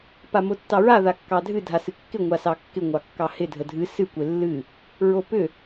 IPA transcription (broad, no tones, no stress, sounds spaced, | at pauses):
p a m o tː ɑ ɹ a ð a kː ɑ dʱ ɨ dʱ a s ɨ kː ɪ ŋʷ a s ɑ kː ɪ ŋʷ ɑ kː ɑ h ɪ dʱ ə dʱ ɨ s ɨ kʷ ɪ lː ɨ | ɹ o p ʏ